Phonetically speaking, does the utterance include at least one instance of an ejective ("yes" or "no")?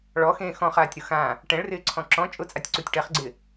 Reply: yes